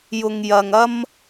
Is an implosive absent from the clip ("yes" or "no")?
yes